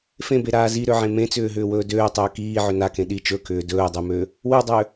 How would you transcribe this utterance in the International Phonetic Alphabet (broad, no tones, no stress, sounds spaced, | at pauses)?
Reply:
f ẽ b e ɾ aː z i ɾ ø ʕ ẽ m ẽ t͡s ʏː ɦ ʏː w ɵː d øː tˤ ʏː k iː ʕ ʏ n a k ẽ ɗ i t͡ʃ ɵ k ʏː d ɵː dˤ ø m ø | w ø dˤ ø